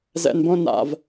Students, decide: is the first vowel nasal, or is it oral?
oral